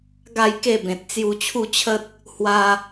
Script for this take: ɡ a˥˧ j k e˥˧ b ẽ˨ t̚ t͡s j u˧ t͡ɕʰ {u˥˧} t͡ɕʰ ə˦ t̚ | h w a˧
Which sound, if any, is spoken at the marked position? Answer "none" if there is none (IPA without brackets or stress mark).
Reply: u˥˧